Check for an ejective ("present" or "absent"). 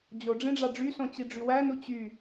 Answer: absent